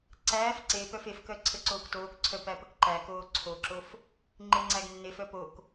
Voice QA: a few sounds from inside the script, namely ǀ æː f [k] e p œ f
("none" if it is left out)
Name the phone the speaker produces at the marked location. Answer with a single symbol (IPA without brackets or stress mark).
ǀ